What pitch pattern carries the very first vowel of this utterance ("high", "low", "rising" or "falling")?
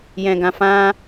low